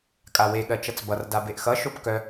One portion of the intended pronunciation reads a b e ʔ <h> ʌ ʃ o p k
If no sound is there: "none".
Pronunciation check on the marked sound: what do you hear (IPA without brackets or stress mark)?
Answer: x